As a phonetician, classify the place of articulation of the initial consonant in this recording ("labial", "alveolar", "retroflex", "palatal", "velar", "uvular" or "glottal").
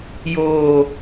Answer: palatal